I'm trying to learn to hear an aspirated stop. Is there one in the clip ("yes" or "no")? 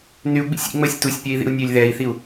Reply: no